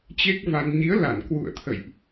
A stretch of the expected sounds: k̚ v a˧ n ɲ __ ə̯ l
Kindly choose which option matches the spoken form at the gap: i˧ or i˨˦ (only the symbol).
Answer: i˨˦